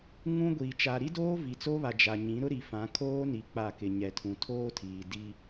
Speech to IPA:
ŋ ũ˦ ɡʷ iː˨ t͡ʃ a˨ ɾ i˦ d oː˦ v i˨ t͡s oː˦ β a˨ d͡ʒ a˨ ɲ ĩ˨˦ ɾ ʊ˦ ɾ i˨ f ã˨˦ kʰ oː˦ n i˨ k͡p a˦˨ k ɪ˨ ɲ ɛ˨ tʰ ũ˨ tʰ oː˦ tʰ iː˨ d i˦

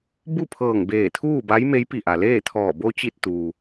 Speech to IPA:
b u˥˨ pʰ ɤː˧˩ ŋ b eː˧˩ t̪ʰ uː˥˨ b a˧˥ j m e˧˥ j p i˧˩ ʔ a˩ l eː˥˨ t̪ʰ ɔː˧˩ b o˧ t͡ɕ i˧˩ t̚ t̪ uː˩

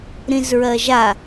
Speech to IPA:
ɾ ĩ z ɹ ɜ ʒ a

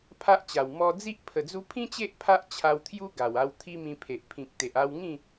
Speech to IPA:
pʰ a˦ ʔ t͡ɕ a˨˩ w m ɔ˧ d͡z i˦ ʔ pʰ ə˨˩ d͡z u˧ pʰ ĩ˦ t͡ɕ e˦ ʔ pʰ a˦ ʔ t͡ɕʰ a˧ w t̪ʰ j u˦ ɡ a˨˩ w a˧ w t̪ʰ i˦ m ĩ˧ pʰ e˨ ʔ pʰ ĩ˨ k̚ t̪ e˨ ʔ a˧ w ŋ ĩ˥˧

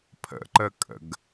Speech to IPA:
pʰ ə̰ ǃ ə kʼ ə̰ ɡ

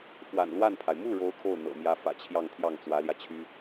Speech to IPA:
f w a̰˨˩ n l w a˥˩ n pʰ a˩ ɪ̯ m u˥˩ ɻ o˧˥ ʊ̯ kʰ o˥˩ ʊ̯ n̪ ɤ̰˨˩ m j ä˧˥ f ä̰˨˩ t͡ɕʰ j ɑ˥˧ ŋ t̪ʰ j ɑ˥˩ ŋ t͡s w ä˧˥ l j ä˧ t͡ɕʰ y˥

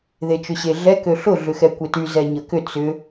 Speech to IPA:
ð e t͡ʃ ʏ ɕ e ɮ ɛ k ø ɬ ʊ ɮ ʏ x ɛ kʷ e t y z ɛ ɲ ə k ʏ t͡s ʏ

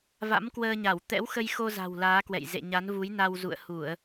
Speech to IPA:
v a̰˧˥ m k w əː˧ ɲ a˧˩ w t̪ ɛ̰˧˥ w x ə˧ j x o˧ z a̤˨˩ w l aː˨˦ k w ɛ̰˧˨ j z ḛ˧˨ ɲ a˨˦ n v u˨˦ j n a˧ w z ṵ˧˨ ə̯ h u˧˩˨ ə̯

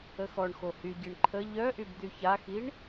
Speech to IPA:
ə x ɔ ɳ x o h y ɟ i ɳ ǃʰ ə ʎ œ ʔ y b d̪ y ç a x i ɳ

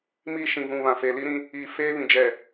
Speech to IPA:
m iː˦ ʃ ĩ˨ v ũ˨ β ã˨ f e˨ l i˦ ɾ ĩ˦ | iː˨ f eː˦ β ĩ˨ d͡ʒ ɛ˨

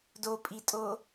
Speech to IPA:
d o pʼ i tʼ o

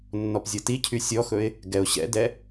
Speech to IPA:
nː ɔ p zʲ ɤ t i cʰ y sʲ ɔ x ɵ ɪ̯ | ɡ ɛ ʊ̯ ɕ ɛ̰ d ɛ

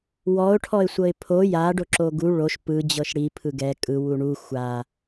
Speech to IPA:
w ɔ ʊ̯ ʈʰ ɔ ɪ̯ sʷ ɤ ɪ̯ pʰ o j a ɖ o ǁ o ɡ u ɭ o ʃ p ɯ d͡ʑ ɤ ʃ ɽ i pʰ ɯ ɡ ɛ kʼ ɯ w u ɳ u xʷ a

